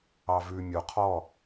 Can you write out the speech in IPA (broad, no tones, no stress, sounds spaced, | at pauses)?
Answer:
ɑ v ʉ mʲ o qʰ ɔ